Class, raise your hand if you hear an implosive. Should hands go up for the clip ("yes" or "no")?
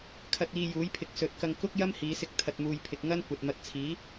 no